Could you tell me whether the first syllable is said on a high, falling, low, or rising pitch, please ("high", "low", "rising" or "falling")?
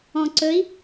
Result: low